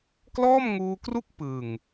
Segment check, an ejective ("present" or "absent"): absent